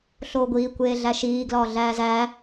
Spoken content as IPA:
ɬ oː ɡʷ iː kʷ eː ɮ æ ʃ iː ɡ l ɒː ɮ æː z æː

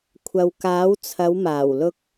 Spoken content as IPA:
kʷʰ ɐ˨ w k aː˨˥ w t͡sʰ ɐ˨˧ w m aː˨˩ w l ʊ˧ k̚

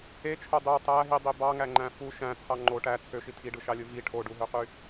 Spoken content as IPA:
e t͡ʃʰ o dˤ y tˤ æ ɦ i dˤ i b ɑ ŋ æ ŋ͡ǃ æ̃ f u ʃ æ̃ t͡sʰ ɑ ŋ͡ǃ o ʈ æ t͡sʰ ø ʃ i tʰ i ɖ ɯ ʃ ɑ lʲ ɯ v i ʈʰ o ɖ u ɦ ø q y

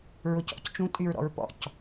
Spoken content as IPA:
ɹ ʊ c ɔ̰ c t͡ʃ ũ tʼ y ɹ ɾ ɔ̰ ɹ p ɔ̰ c

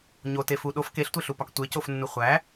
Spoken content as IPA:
ɲ o t e f u ɗ o f k e ɬ tʷ e ɬ u p ɒ k tʷ e c o f nː u χʷ æ

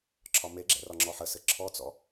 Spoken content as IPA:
ǁʰ ɒ m e ɡ͡ǁ ɛ̰ r ɒ ŋ͡ǁ ɔ ħ ə s ɘ ǁʰ ɔ t͡s ɔ̰

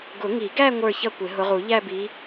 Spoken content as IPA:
ɡ ʊ˨˩˦ ŋ i˨˩˦ ɡ æ˥˧ ŋʷ ə˞˥˧ ç ʌ˥˧ kʷ ɪ˨˩˦ ɦ ʊ˨˦ ʁ u˨˩˦ ʎ æ˥˧ b i˨˦

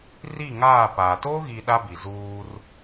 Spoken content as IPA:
r i˦˨ ŋ aː˦˨ p aː˨ t oː˦ ɣ i˨ ɗ a˦ b i˨ z uː˦ r

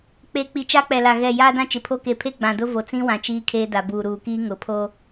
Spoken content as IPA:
k͡p e˨ k͡p i˨ t͡ʃ a˦ k͡p ɛ˨ l a˨ ɣ ɛ˨ j aː˦ d ã˦ t͡ʃ ɪ˨ pʰ o˦ k e˨ pʰ e˦ ɡ͡b ã˨ d ʊ˦ v o˨ t͡s ĩ˦ w ã˨ t͡ʃ iː˦ kʰ eː˦ d a˨ b uː˨ ɾ uː˨ k iː˦ ŋ ʊ˨ pʰ o˦

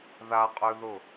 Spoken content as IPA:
ð a qʼ ø ð ʊ

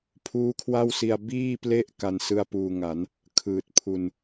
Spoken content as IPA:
pʰ uː˦˥ kʰ w a˥˩ w s i˧ a̯ b iː˥˩ p l e˥˩ ʔ k a˧ n s ɯ˥˩ a̯ p uː˧ ŋ a˩˦ n | kʰ ɯː˨˩ t̚ pʰ u˧ n

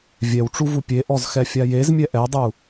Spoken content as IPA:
vʲ ɛ w ʈ͡ʂ u v u pʲ e ʔ ɔ z x ɛ fʲ a j e z mʲ ɛ ʔ ɛ dˤ u

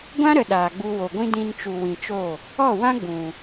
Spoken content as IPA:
ɡʷ ã˦ ɾ ə˨ ɗ aː˨ ɡ͡b u˧ w o˨ ɡʷ ĩ˦ d ĩ˧ n t͡ʃ u˨ w ĩ˨ t͡ʃ o˦˨ | ɔ˦˨ w ã˦ ɡ͡b ũ˨

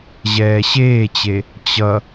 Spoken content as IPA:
ʑ ɛː ɕ eː t͡ɕ e | t͡ɕ ʌ

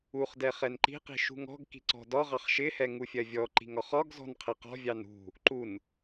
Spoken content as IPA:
u χ d ɛ χ ɛ n ǃ i̤ q i̤ ʃ ṳ ŋ ɔ̤ ɡ k i̤ ǀ ɔ̤ d ɒ ʁ ɑ χ ʃ ɪ h ɛ ŋ u fʲ ɜ vʲ ɔ ǃ i̤ ŋ ɒ χ ɒ ɡ z ɔ̤ n qʰ ɪ q ɔ̤ vʲ ɑ n ṳ | ǃ u n

